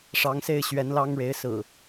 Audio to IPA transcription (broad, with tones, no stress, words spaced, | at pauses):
ʂɑ˨˦ŋse˥˨ɪ̯ɕɥɛ˨˦nlɑ˦ŋ ɻe˨˦ɪ̯sɹ̩˨˩